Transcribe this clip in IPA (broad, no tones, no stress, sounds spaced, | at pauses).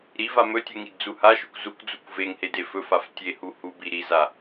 ɾ i v a m ɵ tʲ u ŋ i d d͡z u h a ʃ ɵ kʷ z u kʷ d͡z u kʷ v e ŋ h e d e f ɵ f a f tʲ e h u h u b i ɾ i z a